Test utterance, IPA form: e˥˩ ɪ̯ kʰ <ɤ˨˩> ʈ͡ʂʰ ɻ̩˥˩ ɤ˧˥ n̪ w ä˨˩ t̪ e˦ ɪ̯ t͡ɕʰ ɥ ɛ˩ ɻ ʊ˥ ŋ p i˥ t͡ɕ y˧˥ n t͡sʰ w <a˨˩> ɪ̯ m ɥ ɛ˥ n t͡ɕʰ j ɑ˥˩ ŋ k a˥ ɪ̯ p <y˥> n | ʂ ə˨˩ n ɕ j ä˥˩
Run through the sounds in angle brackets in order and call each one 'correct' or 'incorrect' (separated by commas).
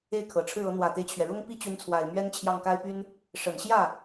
correct, correct, correct